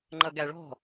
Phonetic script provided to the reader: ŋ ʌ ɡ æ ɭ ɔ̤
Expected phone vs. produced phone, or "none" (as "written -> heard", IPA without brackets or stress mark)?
ŋ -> ŋ͡ǃ